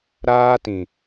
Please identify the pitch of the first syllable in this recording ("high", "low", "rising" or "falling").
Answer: high